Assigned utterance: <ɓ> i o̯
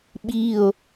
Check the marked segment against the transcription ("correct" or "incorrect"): correct